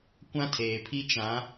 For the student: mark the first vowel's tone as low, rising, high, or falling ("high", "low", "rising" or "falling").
high